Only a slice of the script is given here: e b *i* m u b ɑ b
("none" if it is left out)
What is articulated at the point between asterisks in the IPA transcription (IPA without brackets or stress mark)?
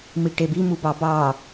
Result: i